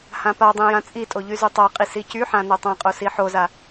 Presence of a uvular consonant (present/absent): present